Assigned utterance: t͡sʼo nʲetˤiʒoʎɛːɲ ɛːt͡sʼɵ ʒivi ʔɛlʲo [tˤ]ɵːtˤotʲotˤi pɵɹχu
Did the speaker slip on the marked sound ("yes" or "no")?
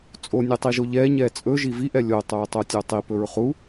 no